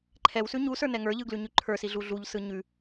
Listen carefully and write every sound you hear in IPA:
ǃʰɛwsʉ ɲusə˞ nɛŋə˞ʎɯ ɡlʉɲʉǃʰə˞si ɮuɮuʎsɯ ɲʉ

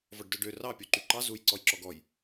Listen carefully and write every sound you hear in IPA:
vɔɖdœɖø rɑ pʲoǃyǃɑ zuj ǀɔjǁɔɡɔj

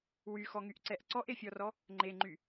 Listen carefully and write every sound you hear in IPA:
wyxɔŋyʔǀɛʔ ǀɔʔefʲɔrɔ | ŋ͡ǃeŋ͡ǃy

